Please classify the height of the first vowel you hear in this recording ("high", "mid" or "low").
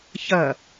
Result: low